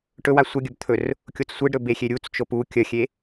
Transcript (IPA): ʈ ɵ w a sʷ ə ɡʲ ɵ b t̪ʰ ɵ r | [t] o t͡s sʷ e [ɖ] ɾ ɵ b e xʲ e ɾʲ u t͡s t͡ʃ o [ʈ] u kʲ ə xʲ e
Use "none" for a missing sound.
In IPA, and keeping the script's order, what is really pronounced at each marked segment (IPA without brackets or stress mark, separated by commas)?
kʲ, ɖ, p